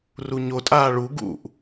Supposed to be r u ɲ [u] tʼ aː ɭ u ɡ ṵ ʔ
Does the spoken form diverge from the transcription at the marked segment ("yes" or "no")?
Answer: yes